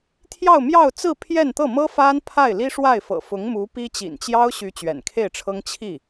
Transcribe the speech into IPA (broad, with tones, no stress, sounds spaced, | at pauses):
t̪ʰ j ɑ˥˧ ʊ̯ m j ɑ˥˧ ʊ̯ t͡s ɹ̩˥˧ pʰ j ɛ˥˧ n t̪ ɤ˥˩ m ɤ˥ f a˥ n pʰ a˥˩ ɪ̯ l i˥ ʂ w a˥˩ ɪ̯ f ɤ̰˨˩ f ʊ˧˥ ŋ m u˧˥ p i˥ t͡ɕ ḭ˨˩ n t͡ɕ j ɑ˥ ʊ̯ ɕ y˧˥ t͡ɕ ɥ ɛ̰˨˩ n kʰ e˥˩ ɪ̯ ʈ͡ʂʰ ɤ˥ ŋ t͡ɕʰ i˥˩